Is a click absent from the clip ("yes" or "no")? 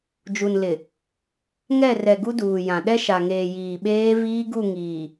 yes